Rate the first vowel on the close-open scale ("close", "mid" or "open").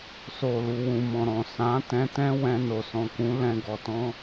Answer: mid